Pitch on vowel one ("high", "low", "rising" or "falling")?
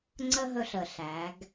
high